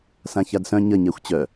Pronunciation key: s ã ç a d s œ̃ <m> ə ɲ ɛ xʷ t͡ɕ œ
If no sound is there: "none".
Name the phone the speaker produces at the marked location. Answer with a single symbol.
ɲ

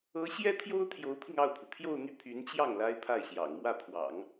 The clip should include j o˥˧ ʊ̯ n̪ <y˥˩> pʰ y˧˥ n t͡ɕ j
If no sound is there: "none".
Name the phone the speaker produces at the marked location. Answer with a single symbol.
y˥˩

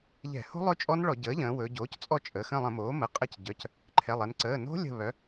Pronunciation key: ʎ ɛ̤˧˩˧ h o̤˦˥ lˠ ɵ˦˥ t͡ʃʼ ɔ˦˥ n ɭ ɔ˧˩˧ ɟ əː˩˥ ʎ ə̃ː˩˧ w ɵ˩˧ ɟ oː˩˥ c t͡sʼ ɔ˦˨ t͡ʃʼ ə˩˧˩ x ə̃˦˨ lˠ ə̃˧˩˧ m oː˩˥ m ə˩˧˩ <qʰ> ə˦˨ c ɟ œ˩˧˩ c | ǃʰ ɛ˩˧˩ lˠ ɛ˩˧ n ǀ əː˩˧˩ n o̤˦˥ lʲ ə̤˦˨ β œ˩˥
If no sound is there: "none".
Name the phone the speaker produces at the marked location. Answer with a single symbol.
qʼ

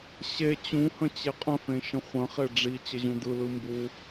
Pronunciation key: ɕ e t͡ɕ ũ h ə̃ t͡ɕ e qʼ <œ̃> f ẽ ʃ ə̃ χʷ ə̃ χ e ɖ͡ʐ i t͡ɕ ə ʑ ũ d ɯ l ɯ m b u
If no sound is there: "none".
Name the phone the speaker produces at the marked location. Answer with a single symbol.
ə̃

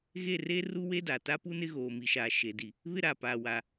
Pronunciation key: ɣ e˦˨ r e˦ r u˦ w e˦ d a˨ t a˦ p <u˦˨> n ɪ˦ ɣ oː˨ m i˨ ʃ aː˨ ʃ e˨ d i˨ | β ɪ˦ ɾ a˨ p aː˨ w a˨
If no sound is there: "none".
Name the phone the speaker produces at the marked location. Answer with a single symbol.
u˦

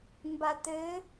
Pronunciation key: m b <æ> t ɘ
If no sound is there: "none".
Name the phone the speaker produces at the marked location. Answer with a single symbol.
a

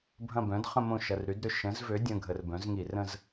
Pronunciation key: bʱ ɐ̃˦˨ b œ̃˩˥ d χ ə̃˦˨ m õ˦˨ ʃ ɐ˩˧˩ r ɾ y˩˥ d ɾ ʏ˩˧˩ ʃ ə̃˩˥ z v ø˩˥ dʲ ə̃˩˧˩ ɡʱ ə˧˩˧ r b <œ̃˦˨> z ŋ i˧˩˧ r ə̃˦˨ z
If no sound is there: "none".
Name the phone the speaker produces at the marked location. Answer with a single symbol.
œ̃˩˥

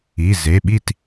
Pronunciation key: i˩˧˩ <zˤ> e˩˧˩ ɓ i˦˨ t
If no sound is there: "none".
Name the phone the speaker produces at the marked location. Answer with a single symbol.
z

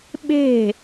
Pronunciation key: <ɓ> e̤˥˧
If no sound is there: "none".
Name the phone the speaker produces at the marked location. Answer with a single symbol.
ɓ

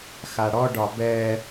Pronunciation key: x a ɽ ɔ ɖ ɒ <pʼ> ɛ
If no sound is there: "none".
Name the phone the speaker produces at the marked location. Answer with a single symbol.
b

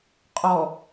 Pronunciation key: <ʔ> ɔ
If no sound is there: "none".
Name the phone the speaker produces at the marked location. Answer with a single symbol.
qʼ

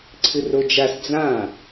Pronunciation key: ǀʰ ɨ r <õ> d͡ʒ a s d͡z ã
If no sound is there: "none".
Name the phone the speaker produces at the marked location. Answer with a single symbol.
o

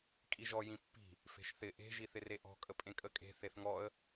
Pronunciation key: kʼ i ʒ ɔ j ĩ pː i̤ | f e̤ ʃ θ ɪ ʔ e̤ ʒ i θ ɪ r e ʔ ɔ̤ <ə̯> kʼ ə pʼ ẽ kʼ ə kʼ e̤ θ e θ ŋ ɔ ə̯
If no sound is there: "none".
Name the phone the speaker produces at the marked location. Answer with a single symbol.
none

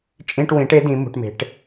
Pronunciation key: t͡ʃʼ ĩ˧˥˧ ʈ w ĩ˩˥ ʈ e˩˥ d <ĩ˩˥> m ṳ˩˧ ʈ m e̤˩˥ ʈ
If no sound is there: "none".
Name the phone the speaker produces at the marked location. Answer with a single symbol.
ĩ˩˥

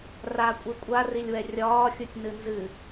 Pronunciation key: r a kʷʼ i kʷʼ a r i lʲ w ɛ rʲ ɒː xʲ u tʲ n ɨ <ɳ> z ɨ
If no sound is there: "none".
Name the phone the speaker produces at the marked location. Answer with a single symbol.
n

